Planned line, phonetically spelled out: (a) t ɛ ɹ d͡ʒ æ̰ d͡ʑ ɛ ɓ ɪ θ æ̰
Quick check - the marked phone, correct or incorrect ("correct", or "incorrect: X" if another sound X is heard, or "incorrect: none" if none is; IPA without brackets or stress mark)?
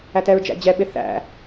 incorrect: æ